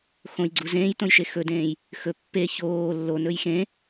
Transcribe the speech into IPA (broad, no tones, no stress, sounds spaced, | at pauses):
x õ j ɡ͡ǀ u z ẽː j t õ j ʃ e x ɵ d ẽː j | x ɵ pː e ç oː lː o n ɵ j x ẽ